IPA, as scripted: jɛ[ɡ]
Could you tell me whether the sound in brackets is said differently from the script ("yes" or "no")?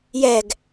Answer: no